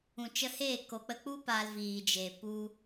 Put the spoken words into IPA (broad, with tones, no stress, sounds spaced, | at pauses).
ũ˨ t͡ʃ ə˧ h eː˦˨ k o˨ k͡p ə˧ k͡p u˦ p a˧ l v iː˨ d͡ʒ e˨ p u˦